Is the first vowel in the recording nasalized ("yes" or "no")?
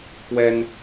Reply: no